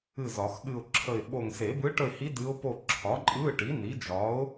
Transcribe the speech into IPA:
ɨ˦˨ z ɒ˨˩˦ x ɠ ɨ˦˨ ʊ̯ ǁʰ ə˦˨ ɪ̯ ɓ o˦˨ ŋ s e˨˩˦ b ɯ˧˥ ʈ ə˦˨ ɪ̯ h i˧˥ d ɨ˧˥ ʊ̯ p o˦˨ ǁʰ ɒ˩˥ ǃʼ ɯ˧˥˧ ʈ i˩˥ n i˩˥ d͡ʒ ɒ˩˥ ʊ̯

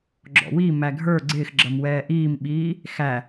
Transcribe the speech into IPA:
ɡ͡ǁ ɔ̰ w i m æ ɡʱ ə˞ ɡ͡ǀ ɪː x ɡ͡ǁ ʌ m w ɛː ʔ iː m ɓ iː | x æ

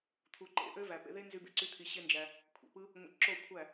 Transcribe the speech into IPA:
t̪ʰ u˨ ǃ ḛ˧ ʔ ø˦ v æ˨ p ḛ˧ ð e˦ n z y˧ b ḛ˧ ǀ y˦ t̪ʰ i˧ ɕ e˦ n d͡ʒ æ˧ | kʷʰ ḛ˨ p ɯ˦ | ŋʷ ḛ˧ ǁ o˦˨ kʷʰ æ˦˨

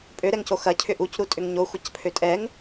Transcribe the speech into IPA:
pʼ ø ɾ ɛ ŋ c o x ɐ cʰ ʏ ʔ u c ɾ u tʼ ʏ ŋ ɲ o xʷ ɐ c pʰ ø tʼ ɛ ŋ

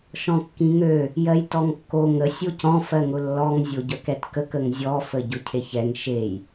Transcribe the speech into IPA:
ʃ ɔ̃ kː ĩ ŋ ø | j ɜ j t ɔ ŋ kː o ŋ ə sʲ o c ɔ̃ f ɜ ŋ ʊ lː ɔ ŋ zʲ o ɟ œ k ɛ t k ə k ə ŋ zʲ ɔ f ə ɟ ʊ cʰ e ç ɛ ŋ ʃ e j

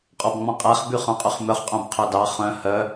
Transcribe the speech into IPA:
qʼ ɔ b ŋ͡m ɔ̃ qʼ æ χ b y χ œ̃ qʼ y χ m œ χ qʼ œ̃ b qʰ œ d ɑ χ œ̃ h œ

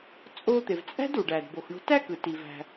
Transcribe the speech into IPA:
t͡sʼ o˧ t̪ e˩ v t͡sʼ æ̤˥ d u˩ ɖ æ˩ d b o˩ x ɳ o̤˧ t æ˥ k ɯ˩ t i˩ v æ̤˩

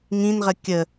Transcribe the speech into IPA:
ŋ ĩ n ʁ ə kʲ ə

